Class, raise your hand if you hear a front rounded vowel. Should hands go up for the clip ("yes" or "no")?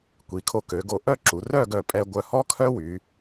yes